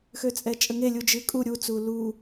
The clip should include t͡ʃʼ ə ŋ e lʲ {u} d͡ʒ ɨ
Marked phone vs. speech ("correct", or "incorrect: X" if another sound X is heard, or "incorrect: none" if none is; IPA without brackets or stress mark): correct